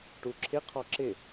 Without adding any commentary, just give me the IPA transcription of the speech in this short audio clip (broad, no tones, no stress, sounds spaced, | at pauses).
ʈ u ǁʰ ɪ qʰ ɔ ǁ ɪ